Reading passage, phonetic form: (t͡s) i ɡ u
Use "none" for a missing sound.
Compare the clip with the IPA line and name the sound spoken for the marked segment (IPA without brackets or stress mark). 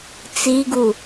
t͡s